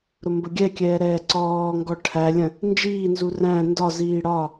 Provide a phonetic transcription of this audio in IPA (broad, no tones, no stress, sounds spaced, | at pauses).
ɾ ʊ m b ə ɡʲ ɛ kʲ ɛː ɾ ɛː ǀ ɔː ŋ ɡ ɔ ʈʰ æ lʲ ə̃ | n d͡ʒ iː n z u r æ̃ n d ɒ z iː ɽ ɒ